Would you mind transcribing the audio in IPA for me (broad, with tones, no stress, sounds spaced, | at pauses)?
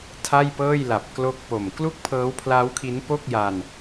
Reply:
tʰ a˥˩ j p ɤː˥˩ j l a˨˩ p̚ k l o˦˥ k̚ p o˨˩ m k l u˥˩ k̚ pʰ ɤː˦˥ w pʰ l a˦˥ w kʰ i˦˥ n p o˥˩ k̚ j a˧ n